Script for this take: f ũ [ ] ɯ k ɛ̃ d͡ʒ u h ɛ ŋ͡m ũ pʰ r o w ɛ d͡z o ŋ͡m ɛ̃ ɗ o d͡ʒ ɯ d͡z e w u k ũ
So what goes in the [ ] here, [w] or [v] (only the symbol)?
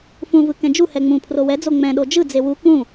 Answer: v